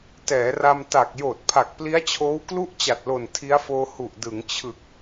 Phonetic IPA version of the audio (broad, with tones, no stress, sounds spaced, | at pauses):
t ɛː˩˦ r a˧ m t a˨˩ k̚ j oː˨˩ t̚ pʰ a˨˩ k̚ p l i˦˥ a̯ t͡ɕʰ oː˦˥ w k l u˥˩ ʔ t͡ɕ a˨˩ t̚ l o˨˩ n tʰ i˦˥ a̯ f oː˧ h u˨˩ ʔ d ɯ˩˦ ŋ t͡ɕʰ ɯ˨˩ k̚